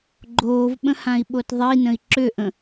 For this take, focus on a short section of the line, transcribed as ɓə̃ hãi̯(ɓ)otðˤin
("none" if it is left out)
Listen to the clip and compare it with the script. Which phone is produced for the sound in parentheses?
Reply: ɓ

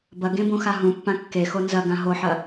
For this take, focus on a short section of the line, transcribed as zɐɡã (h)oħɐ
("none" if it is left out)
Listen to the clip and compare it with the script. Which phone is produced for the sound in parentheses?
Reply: ɦ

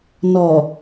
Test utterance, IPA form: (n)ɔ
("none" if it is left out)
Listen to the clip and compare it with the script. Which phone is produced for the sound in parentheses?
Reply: n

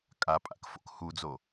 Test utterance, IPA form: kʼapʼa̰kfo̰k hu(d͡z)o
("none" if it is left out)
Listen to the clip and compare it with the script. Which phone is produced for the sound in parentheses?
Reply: d͡z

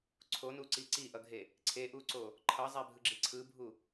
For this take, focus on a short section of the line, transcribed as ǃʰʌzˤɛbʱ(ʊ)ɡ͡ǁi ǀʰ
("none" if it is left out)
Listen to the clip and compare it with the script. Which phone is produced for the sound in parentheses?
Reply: ɯ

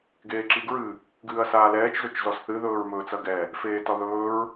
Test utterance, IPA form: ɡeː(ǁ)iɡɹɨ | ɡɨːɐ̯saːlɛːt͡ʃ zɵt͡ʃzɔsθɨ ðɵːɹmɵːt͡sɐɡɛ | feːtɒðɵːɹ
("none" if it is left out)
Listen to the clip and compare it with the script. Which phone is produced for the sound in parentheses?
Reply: ǁ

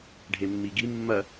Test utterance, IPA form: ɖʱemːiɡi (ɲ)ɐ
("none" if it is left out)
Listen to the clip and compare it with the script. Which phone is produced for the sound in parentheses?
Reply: mː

